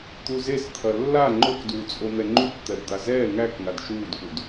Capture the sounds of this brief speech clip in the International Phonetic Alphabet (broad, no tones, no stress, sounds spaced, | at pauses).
t̪ u z e s t̪ʰ ɐ lː a ŋ͡ǃ o k d uː t͡sʼ o n̪ ɛ ŋ͡ǃ u k t̪ ɛ b d̪ a z ɛː ŋ æ k ŋ a d ʃ uː d k u d